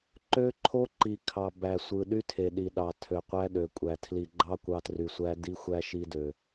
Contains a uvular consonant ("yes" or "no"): yes